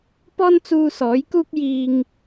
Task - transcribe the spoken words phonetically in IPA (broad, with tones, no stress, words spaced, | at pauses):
pɔː˥nt͡suː˧sɔː˨˥jkuː˥k̚ jiː˧ŋ